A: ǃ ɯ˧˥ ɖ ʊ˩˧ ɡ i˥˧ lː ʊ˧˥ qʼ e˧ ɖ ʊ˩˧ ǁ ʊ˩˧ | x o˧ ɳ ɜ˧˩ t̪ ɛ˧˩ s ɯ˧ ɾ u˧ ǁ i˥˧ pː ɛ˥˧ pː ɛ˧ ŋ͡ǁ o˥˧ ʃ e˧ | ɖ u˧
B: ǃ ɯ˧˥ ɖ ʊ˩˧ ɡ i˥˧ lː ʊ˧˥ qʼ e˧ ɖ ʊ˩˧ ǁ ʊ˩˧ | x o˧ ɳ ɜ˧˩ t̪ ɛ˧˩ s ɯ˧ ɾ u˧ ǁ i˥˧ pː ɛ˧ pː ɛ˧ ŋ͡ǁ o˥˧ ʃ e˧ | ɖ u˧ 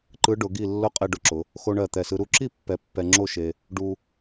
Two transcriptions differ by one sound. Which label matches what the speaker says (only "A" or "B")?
B